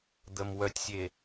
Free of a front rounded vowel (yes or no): no